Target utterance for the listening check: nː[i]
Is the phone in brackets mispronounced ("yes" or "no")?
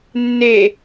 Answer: yes